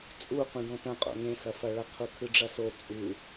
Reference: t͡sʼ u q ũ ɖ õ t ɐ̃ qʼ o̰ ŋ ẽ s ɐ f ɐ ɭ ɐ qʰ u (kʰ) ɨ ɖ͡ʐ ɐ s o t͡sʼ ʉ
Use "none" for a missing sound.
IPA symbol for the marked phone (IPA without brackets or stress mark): kʰ